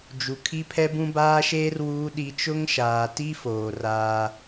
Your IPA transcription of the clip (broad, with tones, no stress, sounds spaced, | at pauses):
d͡ʒ u˨ kʰ i˦ pʰ ɛ˦ b ũ˦ b aː˦ ʃ eː˦ r w uː˦ ɗ i˦ t͡ʃ ʊ˦ ŋ ʃ aː˨ t i˦ f oː˨ r aː˦